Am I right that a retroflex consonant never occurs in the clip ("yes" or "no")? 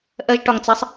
no